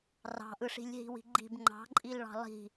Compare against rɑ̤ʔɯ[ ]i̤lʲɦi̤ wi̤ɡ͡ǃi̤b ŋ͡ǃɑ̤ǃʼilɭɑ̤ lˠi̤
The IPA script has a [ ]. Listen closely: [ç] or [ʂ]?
ʂ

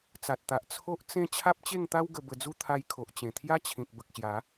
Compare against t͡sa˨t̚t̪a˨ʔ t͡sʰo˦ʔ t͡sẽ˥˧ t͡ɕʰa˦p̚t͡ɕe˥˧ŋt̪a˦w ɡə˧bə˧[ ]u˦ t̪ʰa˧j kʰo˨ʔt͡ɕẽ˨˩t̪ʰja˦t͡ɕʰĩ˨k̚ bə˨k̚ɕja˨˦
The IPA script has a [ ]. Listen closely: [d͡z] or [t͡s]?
d͡z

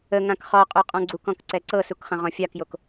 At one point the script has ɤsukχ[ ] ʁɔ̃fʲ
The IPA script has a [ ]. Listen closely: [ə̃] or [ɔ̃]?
ə̃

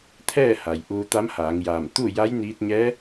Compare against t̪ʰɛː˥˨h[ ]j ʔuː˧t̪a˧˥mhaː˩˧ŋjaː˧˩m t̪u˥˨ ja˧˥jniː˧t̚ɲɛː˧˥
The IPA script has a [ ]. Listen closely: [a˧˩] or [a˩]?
a˩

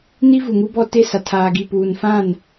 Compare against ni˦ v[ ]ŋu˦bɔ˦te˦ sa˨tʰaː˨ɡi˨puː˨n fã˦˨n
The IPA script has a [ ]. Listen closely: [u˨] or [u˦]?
u˨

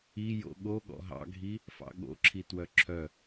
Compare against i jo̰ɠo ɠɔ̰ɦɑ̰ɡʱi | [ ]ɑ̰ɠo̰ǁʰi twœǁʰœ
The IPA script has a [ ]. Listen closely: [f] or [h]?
f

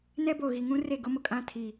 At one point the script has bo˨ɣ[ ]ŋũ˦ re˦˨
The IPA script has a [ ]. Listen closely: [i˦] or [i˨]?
i˨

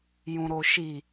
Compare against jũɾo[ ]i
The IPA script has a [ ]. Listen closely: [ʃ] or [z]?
ʃ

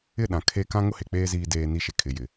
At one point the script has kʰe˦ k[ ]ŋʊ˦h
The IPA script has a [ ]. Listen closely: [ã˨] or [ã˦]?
ã˦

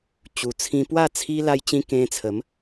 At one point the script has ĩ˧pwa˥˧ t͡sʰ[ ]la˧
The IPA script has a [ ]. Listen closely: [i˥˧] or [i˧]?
i˧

